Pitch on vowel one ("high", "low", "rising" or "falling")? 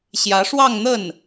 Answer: rising